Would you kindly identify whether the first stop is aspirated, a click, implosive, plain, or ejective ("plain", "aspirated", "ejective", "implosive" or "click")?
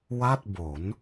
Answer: plain